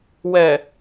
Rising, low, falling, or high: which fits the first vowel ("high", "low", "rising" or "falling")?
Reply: low